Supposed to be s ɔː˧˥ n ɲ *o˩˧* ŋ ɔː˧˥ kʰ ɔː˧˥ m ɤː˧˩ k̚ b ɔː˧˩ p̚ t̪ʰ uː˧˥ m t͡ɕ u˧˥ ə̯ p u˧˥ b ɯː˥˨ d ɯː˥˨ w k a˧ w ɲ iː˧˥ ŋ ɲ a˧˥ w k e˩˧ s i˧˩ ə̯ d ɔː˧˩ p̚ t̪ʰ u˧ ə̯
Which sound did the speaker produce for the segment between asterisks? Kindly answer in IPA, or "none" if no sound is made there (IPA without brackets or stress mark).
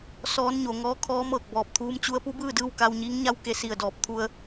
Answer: o˩˧